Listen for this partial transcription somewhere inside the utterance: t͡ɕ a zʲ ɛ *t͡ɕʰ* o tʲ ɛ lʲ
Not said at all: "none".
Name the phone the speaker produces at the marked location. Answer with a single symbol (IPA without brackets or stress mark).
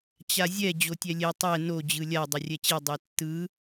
d͡ʑ